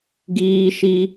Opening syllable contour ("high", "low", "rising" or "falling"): high